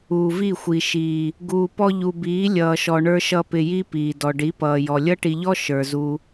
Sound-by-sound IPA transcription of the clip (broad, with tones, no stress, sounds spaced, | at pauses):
uː˨ v i˦˨ xʷ i˨ ʃ iː˨ | ɡ uː˨ p ɔ˧ ʎ u˨ b iː˨˦ lʲ ʌː˨ ʃ ɔ˨ ɳ ə˞˧ ʃ ʌ˧ p ɪ˧ j i˦ p iː˨ d ɔ˨ ɖ i˨˦ p ʌː˨ j ɔ˨ lʲ ʌ˦ ʈ i˧ ʎ ɔ˦ ʃ ə˞˨ z u˧